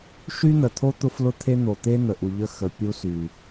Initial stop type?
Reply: aspirated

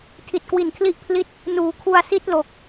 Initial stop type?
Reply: aspirated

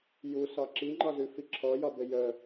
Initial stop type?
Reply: click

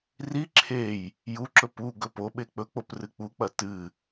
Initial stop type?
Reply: click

